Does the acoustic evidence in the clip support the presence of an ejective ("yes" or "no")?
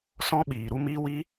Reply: no